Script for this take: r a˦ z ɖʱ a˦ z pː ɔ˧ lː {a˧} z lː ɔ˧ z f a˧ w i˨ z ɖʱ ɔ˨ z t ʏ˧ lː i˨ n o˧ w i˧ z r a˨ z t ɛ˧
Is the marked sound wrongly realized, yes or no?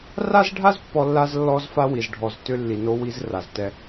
no